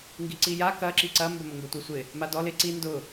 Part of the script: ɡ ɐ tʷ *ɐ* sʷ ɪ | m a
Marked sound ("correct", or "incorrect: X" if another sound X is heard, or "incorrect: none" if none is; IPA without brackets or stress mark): correct